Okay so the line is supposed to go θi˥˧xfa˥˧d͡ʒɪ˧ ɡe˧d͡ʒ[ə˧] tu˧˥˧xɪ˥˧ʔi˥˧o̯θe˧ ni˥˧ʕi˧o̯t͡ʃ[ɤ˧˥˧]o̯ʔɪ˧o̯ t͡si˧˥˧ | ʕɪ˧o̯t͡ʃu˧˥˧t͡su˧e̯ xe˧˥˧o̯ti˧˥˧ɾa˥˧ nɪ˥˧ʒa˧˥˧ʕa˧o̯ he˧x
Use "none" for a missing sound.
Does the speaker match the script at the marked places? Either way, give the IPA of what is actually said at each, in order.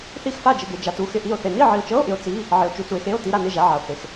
a˧, ɤ˧˥˧

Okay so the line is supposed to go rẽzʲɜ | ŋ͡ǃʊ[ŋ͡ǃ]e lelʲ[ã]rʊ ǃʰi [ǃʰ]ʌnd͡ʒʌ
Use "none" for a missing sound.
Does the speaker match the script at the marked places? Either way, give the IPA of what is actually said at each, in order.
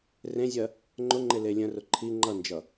ŋ͡ǃ, ə̃, ŋ͡ǃ

